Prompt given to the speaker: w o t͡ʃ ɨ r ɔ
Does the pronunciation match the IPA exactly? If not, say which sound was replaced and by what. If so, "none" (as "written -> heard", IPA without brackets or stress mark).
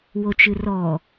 none